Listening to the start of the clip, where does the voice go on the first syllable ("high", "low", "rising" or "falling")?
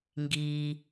low